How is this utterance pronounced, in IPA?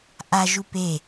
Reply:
ʔaʒu pe

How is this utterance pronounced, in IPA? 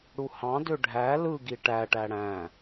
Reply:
ɽuhɑ̃dø ɖʱæ lɯɡi ʈæʈæ ɽæ̃

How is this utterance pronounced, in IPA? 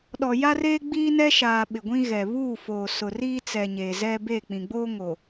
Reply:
ɗɔ˨ja˦reː˦ ɡ͡biː˦nɛ˦ʃaː˨ ɓɪ˨ɡʷĩ˦ɣɛ˨ βuː˦˨foː˨ sʊ˨ riː˦t͡sɛ˨ ɲeː˨zɛ˦ beː˦˨k͡pĩ˨ ɡ͡boː˦ŋo˨

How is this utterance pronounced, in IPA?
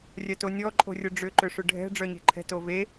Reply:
rʲœtonʲɔ ǃʼo̤rʲʊɖ͡ʐʏ ǃʏʂʏɖʱɛ̤ ɖ͡ʐœɲe̤ǃʰɛ̤ tove

